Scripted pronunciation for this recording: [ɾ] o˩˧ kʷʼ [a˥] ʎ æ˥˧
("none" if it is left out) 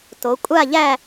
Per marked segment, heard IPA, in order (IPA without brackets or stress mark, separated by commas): t, a˥˧